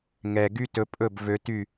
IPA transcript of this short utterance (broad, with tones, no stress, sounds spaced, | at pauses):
ŋ ɛ˨ ɡ y˦ t ɵ˧ pʼ ɵ˦˨ b v ø˧ t y˦˨